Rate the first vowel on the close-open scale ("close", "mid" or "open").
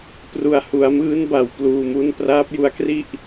close